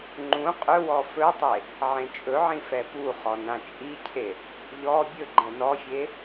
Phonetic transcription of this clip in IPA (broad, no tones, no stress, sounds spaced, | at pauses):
ŋ͡ǃ ũ qʼ ɵ w ɔ f ɵ tˤ e | ʕ ẽ t͡ʃʼ ɵ ʕ ĩ f ɛ p u χ ɔ n ã t͡ʃʼ i cʰ e | ʎ ɔ bʲ ɵ ɡ͡ǃ ɛ̃ n ɔ fʲ e